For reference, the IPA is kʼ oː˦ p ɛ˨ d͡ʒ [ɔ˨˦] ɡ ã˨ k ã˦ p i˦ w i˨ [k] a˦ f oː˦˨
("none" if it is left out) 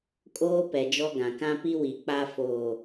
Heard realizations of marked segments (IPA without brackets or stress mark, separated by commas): ɔ˦, k͡p